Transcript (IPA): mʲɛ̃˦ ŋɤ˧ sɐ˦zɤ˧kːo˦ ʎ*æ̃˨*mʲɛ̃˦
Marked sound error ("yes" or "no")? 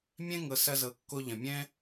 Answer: yes